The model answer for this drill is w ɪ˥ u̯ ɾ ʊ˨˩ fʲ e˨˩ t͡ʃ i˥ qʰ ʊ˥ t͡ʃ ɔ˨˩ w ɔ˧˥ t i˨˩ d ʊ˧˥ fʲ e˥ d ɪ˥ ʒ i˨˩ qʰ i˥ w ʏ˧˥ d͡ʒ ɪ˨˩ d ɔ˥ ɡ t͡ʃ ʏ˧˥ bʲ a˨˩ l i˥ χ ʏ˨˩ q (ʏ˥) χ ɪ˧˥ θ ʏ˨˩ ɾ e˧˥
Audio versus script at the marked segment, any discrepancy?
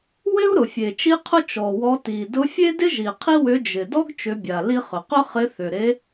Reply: no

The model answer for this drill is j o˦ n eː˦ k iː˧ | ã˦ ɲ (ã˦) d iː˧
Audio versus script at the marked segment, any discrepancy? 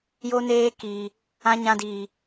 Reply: no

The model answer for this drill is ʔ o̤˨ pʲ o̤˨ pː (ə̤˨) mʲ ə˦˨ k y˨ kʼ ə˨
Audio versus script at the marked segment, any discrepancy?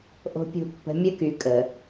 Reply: no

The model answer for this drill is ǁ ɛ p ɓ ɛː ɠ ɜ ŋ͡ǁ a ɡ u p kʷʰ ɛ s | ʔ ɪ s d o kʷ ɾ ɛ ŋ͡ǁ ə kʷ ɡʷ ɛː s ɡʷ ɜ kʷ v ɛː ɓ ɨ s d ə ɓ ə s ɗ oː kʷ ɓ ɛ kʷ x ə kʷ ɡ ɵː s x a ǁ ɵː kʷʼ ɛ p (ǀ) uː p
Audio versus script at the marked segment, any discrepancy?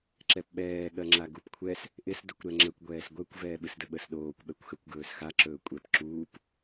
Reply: yes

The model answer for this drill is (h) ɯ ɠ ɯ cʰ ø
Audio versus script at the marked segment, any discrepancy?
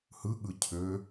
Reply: no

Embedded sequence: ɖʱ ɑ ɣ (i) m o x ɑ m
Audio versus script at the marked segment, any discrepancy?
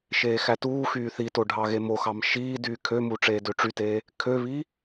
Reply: yes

